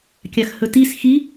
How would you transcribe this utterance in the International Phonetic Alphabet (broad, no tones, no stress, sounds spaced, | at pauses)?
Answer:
kʲ a x h ɵ t i s x i